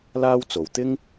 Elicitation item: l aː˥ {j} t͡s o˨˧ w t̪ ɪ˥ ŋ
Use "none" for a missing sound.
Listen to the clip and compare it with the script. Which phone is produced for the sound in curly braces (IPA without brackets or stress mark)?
w